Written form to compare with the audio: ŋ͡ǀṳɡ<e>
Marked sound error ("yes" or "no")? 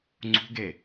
no